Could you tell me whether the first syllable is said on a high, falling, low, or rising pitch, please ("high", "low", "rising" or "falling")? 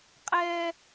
high